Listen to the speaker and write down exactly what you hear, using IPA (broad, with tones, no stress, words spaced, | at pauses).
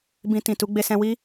bĩ˧tĩ˨tu˨˦ ɡ͡be˧sɛ̃˧wi˦